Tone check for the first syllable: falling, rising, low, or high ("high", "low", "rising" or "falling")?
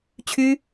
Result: high